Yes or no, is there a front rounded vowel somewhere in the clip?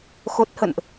no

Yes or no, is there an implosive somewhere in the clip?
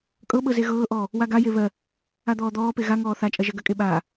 yes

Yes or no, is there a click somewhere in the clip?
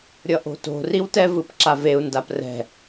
yes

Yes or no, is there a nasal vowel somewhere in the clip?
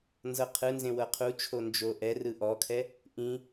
yes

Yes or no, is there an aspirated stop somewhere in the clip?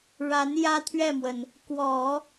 yes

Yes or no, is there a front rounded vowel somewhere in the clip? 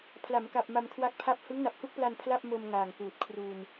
no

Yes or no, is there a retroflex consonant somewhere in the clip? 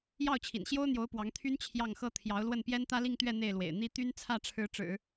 yes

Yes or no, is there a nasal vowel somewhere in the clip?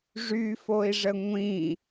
yes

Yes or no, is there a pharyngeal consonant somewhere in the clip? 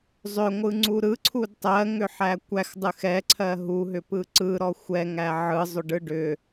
yes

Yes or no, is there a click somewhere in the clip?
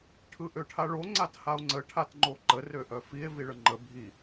yes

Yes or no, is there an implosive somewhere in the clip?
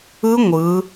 no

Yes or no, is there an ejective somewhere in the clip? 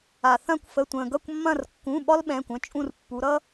yes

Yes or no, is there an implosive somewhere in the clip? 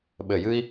yes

